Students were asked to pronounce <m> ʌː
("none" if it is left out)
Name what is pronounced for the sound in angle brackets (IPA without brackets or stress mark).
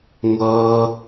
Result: ŋʷ